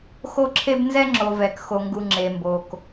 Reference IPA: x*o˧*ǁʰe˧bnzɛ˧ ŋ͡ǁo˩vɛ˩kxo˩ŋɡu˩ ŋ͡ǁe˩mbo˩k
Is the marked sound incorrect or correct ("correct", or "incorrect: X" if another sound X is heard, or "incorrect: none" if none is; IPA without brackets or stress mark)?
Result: correct